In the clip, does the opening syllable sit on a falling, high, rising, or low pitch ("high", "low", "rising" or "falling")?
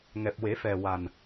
low